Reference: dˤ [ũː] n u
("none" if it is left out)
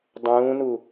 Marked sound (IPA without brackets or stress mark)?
ũː